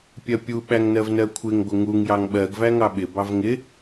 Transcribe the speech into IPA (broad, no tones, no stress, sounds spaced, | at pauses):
pʲ ɜ pʲ u ɓ æ ŋ n ɜ v n ɜ kʷʰ ɪ ŋ ɡʷ ɪ ŋ u ŋ j ɑ ŋ ɓ ɜ ɡ v æ ŋ ɑ ɓ ɪ b ɑ v ŋ ɪ